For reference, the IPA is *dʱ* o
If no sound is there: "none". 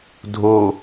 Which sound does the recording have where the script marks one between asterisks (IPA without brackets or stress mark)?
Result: dʱ